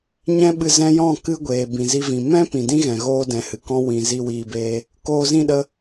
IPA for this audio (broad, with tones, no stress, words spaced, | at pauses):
ɲɛ̃˦ɓɨ˧ zɛ̃˧jɔ̃˦˨ kɨ˦ɡʷeː˨ bĩ˨zi˧vĩ˨ mɛ̃˦ pĩ˨ dĩ˦ɣɛ̃˨ ɣoː˦dɛ̃˨hɨ˨ kɔ̃˧wĩ˨ zi˧wiː˧beː˧ | koː˧zĩ˦˨ɗə˧